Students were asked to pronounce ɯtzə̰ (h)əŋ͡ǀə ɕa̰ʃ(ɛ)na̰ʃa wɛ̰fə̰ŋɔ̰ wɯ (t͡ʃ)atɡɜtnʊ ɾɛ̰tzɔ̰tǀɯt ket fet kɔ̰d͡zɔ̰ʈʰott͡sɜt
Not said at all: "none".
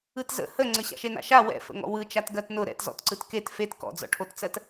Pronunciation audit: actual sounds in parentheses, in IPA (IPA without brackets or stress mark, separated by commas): h, e, t͡ʃ